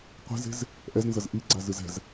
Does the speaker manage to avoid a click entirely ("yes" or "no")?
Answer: no